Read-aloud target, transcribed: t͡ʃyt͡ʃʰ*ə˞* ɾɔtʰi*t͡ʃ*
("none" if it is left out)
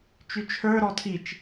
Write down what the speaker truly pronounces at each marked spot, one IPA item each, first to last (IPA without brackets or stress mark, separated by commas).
ə˞, t͡ʃ